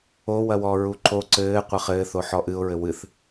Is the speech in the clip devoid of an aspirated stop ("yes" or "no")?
yes